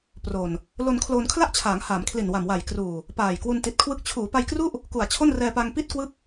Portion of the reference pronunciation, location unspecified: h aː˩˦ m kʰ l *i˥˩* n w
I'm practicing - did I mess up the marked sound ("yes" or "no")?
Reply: yes